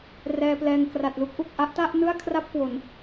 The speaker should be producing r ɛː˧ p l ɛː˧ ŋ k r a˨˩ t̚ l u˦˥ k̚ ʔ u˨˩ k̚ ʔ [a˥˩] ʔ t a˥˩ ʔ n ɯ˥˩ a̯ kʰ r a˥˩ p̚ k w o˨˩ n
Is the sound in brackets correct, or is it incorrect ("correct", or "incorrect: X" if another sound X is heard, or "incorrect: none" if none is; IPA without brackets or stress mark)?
correct